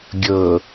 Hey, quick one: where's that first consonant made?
velum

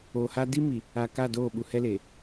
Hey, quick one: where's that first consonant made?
throat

